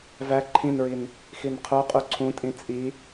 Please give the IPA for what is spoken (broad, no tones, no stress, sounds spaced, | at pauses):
v æ ǃʰ ĩ n ɹ i n | x i n qʰ o qʼ u ǀʰ ũ tʼ ĩ t͡sʼ i